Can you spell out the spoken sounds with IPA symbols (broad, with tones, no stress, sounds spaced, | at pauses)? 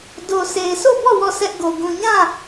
d o˨ sʰ e˨ ɪ̯ sʰ o˦˨ b ɔ˦˨ w ɔ˦˨ s ɛ˦ ʔ ɡ o˨ ɡ ũ˨ ɲ ã˦˨